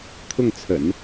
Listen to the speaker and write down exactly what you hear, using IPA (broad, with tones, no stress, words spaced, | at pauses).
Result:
t̪ʰʊ˥˩ŋt͡sʰə̰˨˩˦n